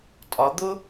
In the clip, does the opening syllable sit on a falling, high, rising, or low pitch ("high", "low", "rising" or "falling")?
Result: rising